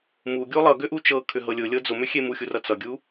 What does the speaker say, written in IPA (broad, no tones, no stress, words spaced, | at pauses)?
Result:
muɡʲu lˠʌɡʏʔu t͡ʃɤkʰʏɦɤ lʲʊlʲɤ d͡zʊmʏxʲe muxʲurʌ t͡sʌɡʲu